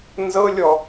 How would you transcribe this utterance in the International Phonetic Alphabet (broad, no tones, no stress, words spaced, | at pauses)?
nzɤlʲɔ